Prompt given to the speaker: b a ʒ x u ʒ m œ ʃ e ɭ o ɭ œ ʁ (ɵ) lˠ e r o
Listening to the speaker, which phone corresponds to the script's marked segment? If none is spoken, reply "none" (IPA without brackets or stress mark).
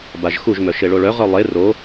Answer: œ